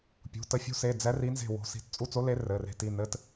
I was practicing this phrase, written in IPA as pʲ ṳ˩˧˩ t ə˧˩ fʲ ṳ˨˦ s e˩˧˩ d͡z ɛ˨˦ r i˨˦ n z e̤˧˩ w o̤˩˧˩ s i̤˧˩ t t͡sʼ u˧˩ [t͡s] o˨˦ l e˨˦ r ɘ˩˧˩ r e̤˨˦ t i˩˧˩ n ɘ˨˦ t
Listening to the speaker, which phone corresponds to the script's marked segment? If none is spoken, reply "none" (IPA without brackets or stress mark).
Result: t͡s